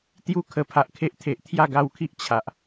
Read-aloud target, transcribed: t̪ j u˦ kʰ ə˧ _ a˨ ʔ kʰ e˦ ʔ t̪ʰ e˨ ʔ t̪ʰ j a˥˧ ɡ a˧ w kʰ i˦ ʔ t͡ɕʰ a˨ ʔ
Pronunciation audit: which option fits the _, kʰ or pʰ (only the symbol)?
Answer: pʰ